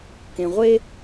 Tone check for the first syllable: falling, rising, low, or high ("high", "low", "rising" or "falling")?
low